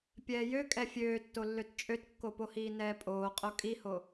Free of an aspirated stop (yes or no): yes